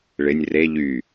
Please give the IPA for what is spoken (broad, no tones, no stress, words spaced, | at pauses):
ɭɪnʲ re ʎy